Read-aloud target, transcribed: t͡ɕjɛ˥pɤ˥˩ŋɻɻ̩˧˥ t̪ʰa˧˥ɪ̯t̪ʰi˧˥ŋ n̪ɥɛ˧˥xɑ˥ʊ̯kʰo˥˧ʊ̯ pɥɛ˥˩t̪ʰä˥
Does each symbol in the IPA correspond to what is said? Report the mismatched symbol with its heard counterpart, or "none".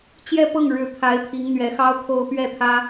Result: none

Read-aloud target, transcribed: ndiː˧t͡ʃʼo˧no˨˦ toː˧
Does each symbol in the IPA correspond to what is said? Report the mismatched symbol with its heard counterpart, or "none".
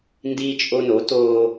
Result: none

